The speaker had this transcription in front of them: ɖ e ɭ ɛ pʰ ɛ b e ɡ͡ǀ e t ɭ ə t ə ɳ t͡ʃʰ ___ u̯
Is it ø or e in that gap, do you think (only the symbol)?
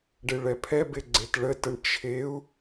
e